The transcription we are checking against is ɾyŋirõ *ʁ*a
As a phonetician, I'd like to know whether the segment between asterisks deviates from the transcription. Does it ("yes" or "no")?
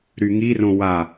yes